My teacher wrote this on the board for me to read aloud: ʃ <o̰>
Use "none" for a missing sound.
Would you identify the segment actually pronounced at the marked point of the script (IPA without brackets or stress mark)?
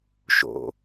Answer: o̰